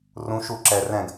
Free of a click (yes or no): no